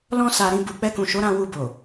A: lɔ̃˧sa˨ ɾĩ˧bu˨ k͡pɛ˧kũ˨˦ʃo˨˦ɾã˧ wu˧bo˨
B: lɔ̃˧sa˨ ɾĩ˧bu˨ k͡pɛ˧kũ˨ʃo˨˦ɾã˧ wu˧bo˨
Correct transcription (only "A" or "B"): B